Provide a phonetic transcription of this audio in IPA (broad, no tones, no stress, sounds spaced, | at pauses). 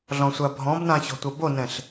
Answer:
ɮ ɔ̃ sʷ a bʱ ɔ̃ b n ã ç ɔ̤ tʷ ɐ b o n ɛ̃ ɬ